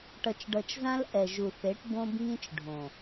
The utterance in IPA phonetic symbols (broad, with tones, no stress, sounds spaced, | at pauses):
ʈ ʌ˨ t͡ʃ ɖ ʌ˨ t͡ʃ z ã˦ l ʔ ɛ˨ ʒ u˨ θ e˨˦ ʈ b õ˦ b ŋ ĩ˦ t͡ʃ ɖʱ õ˨